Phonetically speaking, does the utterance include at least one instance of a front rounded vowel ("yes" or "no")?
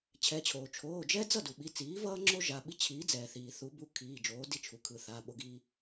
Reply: no